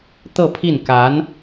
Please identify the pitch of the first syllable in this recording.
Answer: falling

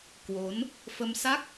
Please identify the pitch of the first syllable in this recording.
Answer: rising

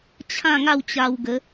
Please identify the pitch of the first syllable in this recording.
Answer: falling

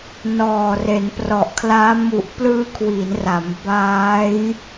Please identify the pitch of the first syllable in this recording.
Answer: low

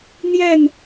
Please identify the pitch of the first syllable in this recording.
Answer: falling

